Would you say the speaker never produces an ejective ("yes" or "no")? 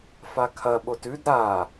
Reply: yes